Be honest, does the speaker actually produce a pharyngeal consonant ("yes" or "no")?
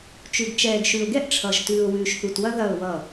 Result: no